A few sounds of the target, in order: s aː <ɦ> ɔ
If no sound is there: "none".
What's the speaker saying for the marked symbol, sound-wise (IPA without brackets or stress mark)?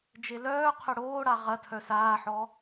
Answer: ħ